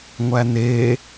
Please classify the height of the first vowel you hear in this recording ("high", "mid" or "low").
low